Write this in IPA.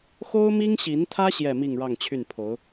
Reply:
xo˥ʊ̯mi˥ŋɕi˧˥nt̪ʰä˥ ɕjɛ˥˧mi˥˧ŋ ɻɑ˥˧ŋt͡ɕʰy˥˩npʰo˧˥ʊ̯

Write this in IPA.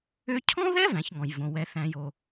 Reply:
ø˧cʰɔ̃˦ðɛ˦ væ̃˨˦çŋɔ̃˨jvõ˨ wɛ˨θæ̃˨jo˨

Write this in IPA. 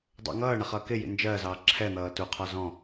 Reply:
dˤə̰ ŋʌːɳʌχ ʌːkɪjḭ nd͡ʒɜzɑː ǁʰɛn̪ʌː tuqʰɒ zɔ̃

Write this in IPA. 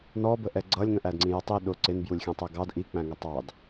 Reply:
nɔbəʔɛ ɡ͡ǀʌlʲŋə̃ʔædŋ͡ǀĩ jʌtˤji ɗʊ ǀɪnbjulʲxʲæ̃tˤɛ ɡɑd ʔik͡pæ̃ŋætˤ ɑd

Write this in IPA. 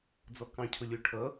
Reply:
d͡zɔkɑ̃cʰʊlʲʊ ʈʰʌ

